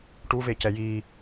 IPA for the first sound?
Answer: ʈ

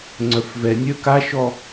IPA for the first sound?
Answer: ŋ͡ǀ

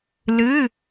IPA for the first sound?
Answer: l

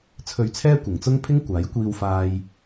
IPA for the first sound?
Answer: t͡sʰ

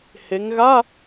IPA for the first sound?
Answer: h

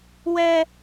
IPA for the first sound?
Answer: w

